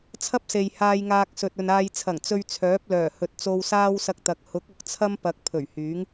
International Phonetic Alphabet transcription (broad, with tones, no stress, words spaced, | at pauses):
t͡sʰɐ˥p̚se˨jhaː˧j ŋaː˧k̚sɵ˨t̚ ɵ˨naː˧j t͡sʰɐ˨˩ŋ t͡sɵ˧ɥ t͡sʰœː˨˥p̚lœː˨˩hɵ˨t̚ t͡so˧wsaː˥wsɐ˧k̚t̪ɐ˨˥k̚ hʊ˨˥k̚ʊ˨k̚t͡sʰɐ˥m pɐ˧k̚ pʰɵ˨˩ɥhyː˨˥ŋ